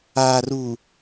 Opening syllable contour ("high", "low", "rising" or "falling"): low